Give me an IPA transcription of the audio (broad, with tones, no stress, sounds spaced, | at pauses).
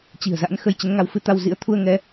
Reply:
t͡ɕ i̤˨˩ ə̯ z a̰˧˥ n x ə˧ j t͡ɕ ə˨˦ n ŋ a˧ w f ɨ˧ t̪ a˧ w z ḭ˧˥ ə̯ t̪ʰ u˧ ə̯ ŋ ɛ˧